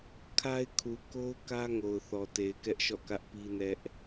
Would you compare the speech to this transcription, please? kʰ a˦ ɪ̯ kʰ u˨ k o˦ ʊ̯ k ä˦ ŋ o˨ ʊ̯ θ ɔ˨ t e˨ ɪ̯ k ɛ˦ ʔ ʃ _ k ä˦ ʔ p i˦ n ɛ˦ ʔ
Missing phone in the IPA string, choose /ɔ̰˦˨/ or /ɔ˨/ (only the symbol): ɔ̰˦˨